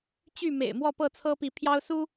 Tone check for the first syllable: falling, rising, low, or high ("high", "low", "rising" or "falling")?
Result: falling